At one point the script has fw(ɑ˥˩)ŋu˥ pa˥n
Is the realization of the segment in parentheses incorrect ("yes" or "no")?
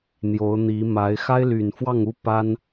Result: no